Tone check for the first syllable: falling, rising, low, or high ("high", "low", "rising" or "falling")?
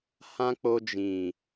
high